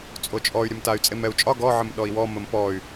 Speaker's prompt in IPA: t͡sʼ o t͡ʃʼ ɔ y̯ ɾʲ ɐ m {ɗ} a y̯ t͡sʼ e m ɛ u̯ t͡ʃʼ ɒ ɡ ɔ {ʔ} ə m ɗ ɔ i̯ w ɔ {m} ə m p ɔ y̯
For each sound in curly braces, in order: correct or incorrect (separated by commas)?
incorrect, incorrect, correct